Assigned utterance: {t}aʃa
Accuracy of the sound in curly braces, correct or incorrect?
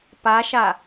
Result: incorrect